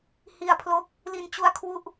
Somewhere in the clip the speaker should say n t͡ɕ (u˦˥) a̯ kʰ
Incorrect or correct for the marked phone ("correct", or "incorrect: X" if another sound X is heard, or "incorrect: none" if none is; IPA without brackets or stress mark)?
correct